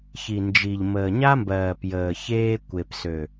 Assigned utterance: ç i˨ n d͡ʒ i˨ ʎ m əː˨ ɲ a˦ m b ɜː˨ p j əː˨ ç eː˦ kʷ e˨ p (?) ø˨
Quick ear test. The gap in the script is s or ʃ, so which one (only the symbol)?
s